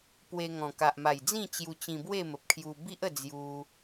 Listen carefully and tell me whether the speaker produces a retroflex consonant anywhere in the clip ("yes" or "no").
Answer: no